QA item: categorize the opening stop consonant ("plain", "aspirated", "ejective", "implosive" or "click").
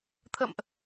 aspirated